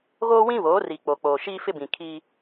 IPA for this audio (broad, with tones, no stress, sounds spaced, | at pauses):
ɣ oː˦ w ĩ˦ β oː˨˦ r i˨ k͡p o˨ k͡p oː˨ ʃ iː˦ f ɪ˦ b ĩ˨ kʰ i˦